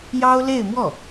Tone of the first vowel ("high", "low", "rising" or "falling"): high